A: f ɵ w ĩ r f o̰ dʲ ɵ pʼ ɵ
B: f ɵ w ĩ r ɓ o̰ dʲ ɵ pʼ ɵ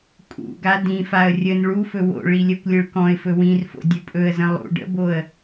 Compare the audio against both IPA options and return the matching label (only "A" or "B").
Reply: A